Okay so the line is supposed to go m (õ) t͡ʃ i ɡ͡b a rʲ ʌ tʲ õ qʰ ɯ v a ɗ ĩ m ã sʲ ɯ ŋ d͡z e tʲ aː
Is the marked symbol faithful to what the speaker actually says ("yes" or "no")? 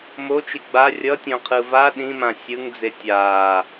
no